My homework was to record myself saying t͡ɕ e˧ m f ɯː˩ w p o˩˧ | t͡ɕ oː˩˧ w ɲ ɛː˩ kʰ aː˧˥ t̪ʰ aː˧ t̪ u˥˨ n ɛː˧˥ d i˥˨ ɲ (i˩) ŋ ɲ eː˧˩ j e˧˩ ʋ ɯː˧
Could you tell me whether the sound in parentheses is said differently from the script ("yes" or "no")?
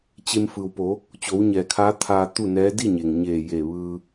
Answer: yes